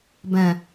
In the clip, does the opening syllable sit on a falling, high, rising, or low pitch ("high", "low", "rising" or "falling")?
low